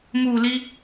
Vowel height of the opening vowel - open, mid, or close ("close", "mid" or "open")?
close